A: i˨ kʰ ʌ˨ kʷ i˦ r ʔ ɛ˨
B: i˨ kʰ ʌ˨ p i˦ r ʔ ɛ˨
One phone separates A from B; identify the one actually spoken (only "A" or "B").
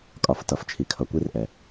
A